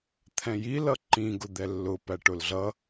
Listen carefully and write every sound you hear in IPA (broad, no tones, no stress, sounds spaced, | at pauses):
t̪ʰ ɛ̃ j i l ʌ ǃ ĩ ɡ ʊ d̪ ɛ lː ʊ p æ ʈ ʊ l ɮ ʌ